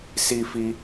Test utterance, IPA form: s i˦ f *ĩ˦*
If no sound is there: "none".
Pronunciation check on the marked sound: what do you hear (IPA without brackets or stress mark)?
i˦